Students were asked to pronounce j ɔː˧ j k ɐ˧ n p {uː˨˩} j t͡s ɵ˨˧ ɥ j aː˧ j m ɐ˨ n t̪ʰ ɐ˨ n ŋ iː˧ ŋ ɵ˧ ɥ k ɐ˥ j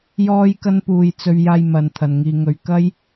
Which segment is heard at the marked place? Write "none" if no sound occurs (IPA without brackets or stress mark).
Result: uː˨